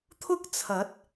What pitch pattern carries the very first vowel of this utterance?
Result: high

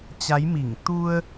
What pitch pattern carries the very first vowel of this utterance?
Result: rising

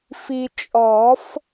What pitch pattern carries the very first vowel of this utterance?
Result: low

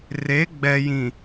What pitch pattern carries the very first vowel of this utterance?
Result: rising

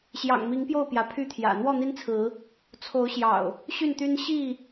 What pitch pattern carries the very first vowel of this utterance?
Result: low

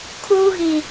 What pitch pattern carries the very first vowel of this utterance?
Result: high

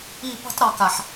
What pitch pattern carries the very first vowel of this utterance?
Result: falling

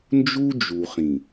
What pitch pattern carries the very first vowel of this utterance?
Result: high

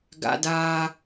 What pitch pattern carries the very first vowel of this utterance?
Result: high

